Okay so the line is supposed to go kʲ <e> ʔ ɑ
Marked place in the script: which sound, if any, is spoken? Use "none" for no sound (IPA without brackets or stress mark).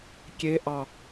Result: e